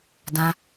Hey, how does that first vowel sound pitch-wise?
high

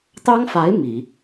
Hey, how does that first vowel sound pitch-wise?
high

